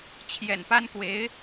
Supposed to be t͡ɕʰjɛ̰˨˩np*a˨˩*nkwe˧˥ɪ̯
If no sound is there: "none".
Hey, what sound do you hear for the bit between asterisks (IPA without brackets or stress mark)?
a˥